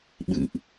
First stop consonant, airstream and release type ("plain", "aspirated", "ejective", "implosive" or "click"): implosive